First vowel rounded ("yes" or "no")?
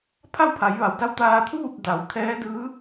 no